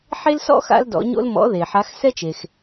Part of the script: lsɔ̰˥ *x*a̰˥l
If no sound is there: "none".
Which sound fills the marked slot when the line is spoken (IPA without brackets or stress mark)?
x